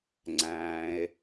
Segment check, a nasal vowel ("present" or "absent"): present